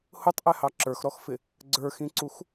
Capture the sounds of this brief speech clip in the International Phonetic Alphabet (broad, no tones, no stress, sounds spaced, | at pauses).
h ʊ tˤ ʔ ɛ h ɑ ǁ ə˞ x ɾ ɔ x f ɪ | ɡ͡ǀ ə˞ x ĩ ǀ u x